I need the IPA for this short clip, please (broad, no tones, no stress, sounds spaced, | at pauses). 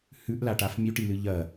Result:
h ʉ ʔ l a ʈ a f mʲ ʉ ʈ i l ɨ ʎ ɐ